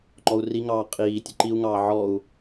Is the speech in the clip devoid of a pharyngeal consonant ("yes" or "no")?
no